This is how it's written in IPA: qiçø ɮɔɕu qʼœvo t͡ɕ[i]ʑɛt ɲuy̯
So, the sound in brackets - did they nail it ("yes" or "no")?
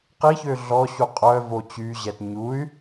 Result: no